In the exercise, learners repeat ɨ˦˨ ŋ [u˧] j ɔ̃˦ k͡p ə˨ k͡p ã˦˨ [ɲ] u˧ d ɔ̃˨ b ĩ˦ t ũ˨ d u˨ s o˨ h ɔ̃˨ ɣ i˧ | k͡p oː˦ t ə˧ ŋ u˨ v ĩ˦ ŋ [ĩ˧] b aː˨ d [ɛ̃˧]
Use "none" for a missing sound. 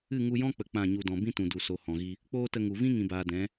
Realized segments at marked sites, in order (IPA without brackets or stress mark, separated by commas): u˧, ɲ, ĩ˨, ɛ̃˨˦